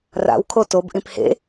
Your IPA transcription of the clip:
ra̰wkʰo tobʔĩp hḛ

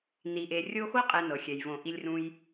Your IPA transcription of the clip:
ni˨ʔe˨ rʲo˦xo˥qʼɛ˨ nɤ˩xʲɛ˩jvõ˨ ʔi˨lʲrũ˨j

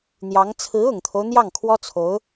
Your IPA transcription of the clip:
n̪jɑ˧˥ŋ t͡sʰɹ̩˧˥ʊ˨˩ŋt̪ʰo˦ʊ̯ n̪jɑ˥˩ŋkʰwɔ˥t͡sʰo˧˥ʊ̯

